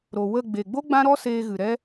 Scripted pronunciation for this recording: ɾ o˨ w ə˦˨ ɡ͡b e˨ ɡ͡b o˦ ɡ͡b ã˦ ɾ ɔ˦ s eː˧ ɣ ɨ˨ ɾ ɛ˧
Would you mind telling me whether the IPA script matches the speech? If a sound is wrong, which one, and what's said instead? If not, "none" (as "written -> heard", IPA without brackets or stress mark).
none